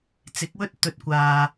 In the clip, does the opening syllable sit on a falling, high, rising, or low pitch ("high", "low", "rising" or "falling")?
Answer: rising